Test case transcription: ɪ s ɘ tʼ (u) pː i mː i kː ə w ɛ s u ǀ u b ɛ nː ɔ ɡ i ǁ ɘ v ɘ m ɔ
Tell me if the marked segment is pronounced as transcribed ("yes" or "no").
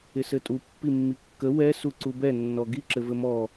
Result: yes